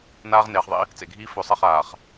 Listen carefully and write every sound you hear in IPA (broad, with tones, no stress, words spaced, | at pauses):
naː˦ʁ neː˨χðˤḭ˦ | t͡sḛ˨ɡʱiː˦ fɵ˨˦sˤɐ˦˨χaː˨χ